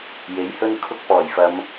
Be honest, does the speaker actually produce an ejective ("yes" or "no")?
no